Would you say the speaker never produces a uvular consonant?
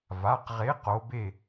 no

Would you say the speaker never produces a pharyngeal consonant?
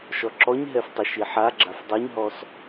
no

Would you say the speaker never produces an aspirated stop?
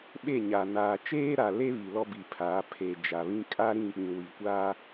no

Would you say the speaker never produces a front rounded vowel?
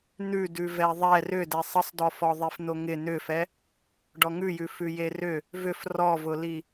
no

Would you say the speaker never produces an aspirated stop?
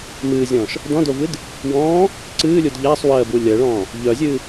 yes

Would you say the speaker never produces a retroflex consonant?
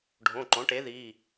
no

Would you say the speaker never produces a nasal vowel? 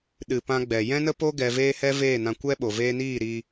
no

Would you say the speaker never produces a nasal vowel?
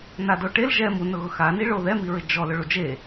yes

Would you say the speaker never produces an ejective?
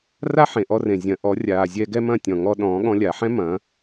yes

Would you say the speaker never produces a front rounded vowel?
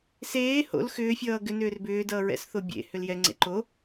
no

